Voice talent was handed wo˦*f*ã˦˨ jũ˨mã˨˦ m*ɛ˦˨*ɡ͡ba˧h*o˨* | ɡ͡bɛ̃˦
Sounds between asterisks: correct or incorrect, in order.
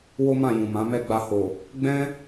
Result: incorrect: m, correct, correct

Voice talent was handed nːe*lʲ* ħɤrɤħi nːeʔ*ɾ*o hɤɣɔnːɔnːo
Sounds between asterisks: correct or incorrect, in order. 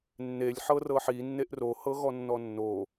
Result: correct, incorrect: r

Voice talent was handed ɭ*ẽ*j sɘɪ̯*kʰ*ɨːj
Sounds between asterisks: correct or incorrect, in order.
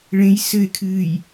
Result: correct, correct

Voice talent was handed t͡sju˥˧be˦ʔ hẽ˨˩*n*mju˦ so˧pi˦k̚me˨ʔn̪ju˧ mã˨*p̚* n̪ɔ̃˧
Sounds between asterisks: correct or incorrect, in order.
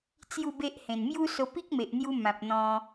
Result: correct, correct

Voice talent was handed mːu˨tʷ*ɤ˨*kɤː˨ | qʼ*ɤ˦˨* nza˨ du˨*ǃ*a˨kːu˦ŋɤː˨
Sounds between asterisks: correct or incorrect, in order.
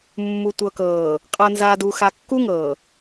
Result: correct, incorrect: ɤ˨, incorrect: x

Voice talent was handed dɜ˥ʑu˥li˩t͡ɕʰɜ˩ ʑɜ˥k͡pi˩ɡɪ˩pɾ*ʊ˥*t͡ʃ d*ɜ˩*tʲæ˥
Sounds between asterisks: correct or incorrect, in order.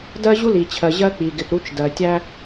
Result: incorrect: u˥, correct

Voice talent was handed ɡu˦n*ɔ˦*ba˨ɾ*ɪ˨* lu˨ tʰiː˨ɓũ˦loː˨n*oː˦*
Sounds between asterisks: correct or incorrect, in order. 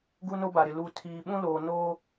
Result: incorrect: o˦, correct, correct

